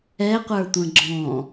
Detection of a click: present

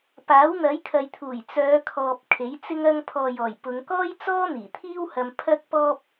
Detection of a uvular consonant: absent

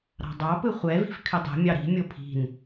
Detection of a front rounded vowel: present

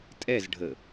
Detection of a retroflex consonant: present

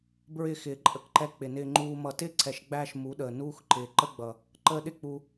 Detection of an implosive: present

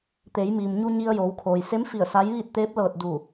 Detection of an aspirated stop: present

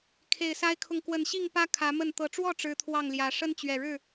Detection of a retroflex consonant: present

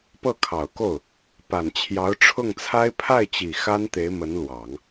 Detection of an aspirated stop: present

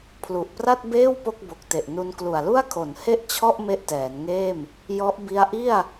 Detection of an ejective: absent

